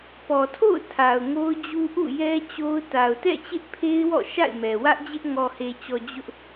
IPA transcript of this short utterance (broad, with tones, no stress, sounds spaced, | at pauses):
p ɔ˨ tʰ o̰˦˨ ʊ̯ tʰ a˨ ʊ̯ ŋ o˦ ʊ̯ d͡ʑ u˦ ʔ ṵ˦˨ j ɛ˦ t͡ɕ o˦ ʊ̯ t a˨ ʊ̯ t ɛ̰˦˨ t͡ɕ ɪ˦ ʔ pʰ e˦ ɪ̯ w ɔ̰˦˨ ʃ a̰˦˨ ɪ̯ m ɛ˨ w ä˦ ʔ d͡ʑ ɪ˦ ʔ ŋ ɔ˨ h e˨ t͡ɕ ɔ˨ d͡ʑ ʊ˦ ʔ